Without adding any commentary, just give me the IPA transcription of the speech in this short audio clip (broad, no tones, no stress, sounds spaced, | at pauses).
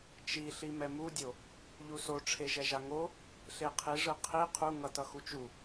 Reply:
t͡ʃ i ɬ i m ɛ m u dʲ o | ʎ u s o ʈ͡ʂʰ e ʒ ɛ ʒ a ŋ o | ɬ e qʰ i ʐ ɯ qʰ i qʰ u ŋ ʌ t ʌ x u t͡ʃ u